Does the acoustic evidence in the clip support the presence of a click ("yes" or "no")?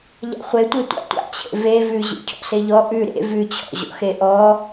no